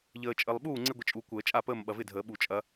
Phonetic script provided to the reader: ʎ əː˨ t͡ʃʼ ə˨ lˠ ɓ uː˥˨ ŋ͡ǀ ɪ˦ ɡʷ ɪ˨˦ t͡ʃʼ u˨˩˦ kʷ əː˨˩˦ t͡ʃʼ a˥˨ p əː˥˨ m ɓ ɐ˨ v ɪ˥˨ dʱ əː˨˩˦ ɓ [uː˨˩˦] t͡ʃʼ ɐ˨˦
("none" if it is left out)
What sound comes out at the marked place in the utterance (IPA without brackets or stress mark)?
u˨˩˦